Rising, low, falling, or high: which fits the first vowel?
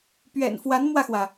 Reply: low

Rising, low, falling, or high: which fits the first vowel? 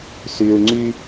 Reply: low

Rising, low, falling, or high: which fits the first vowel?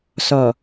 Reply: low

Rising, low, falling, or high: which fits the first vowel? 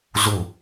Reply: falling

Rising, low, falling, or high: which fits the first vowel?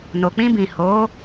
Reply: low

